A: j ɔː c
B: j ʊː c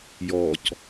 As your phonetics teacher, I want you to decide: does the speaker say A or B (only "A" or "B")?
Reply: A